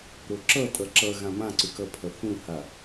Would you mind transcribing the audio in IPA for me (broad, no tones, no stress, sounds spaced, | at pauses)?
ɾ o ǁ ʌ tʼ ʌ ǁ ʌ ɣ ã m ã ǀ ʏ k ʌ pʰ ʌ θ ũ h a